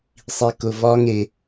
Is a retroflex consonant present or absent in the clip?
absent